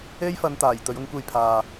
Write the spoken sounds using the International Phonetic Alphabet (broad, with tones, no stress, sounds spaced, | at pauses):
e˥ j f ɐ˧ n t̪ aː˨˩ j t̪ ɵ˨˧ ɥ ʊ˧ ŋ kʷ e˧ j pʰ aː˨